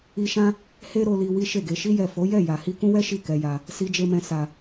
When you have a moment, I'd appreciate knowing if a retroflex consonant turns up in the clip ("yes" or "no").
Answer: no